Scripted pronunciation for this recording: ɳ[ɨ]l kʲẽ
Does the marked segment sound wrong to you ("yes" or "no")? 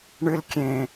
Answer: no